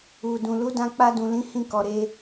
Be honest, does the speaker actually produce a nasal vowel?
yes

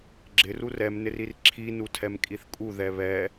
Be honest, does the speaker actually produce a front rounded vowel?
no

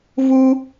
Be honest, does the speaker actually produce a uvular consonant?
no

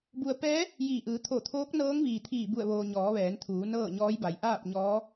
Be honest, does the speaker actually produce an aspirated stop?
yes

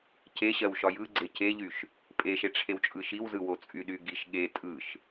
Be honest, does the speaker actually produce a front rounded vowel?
yes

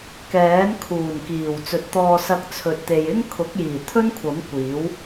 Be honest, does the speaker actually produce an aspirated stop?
yes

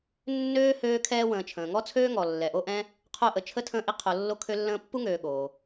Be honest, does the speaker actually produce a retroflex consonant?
no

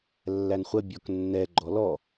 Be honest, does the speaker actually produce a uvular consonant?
yes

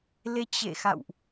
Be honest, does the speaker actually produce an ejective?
no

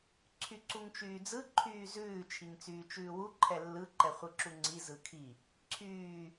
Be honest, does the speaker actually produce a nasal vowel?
no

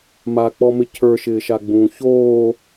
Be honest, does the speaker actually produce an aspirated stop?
yes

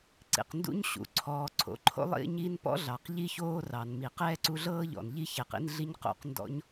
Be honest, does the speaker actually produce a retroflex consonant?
no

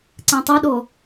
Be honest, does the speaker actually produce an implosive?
yes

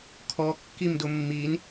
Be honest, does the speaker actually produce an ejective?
no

